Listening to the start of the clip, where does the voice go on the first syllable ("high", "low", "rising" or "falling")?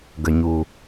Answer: low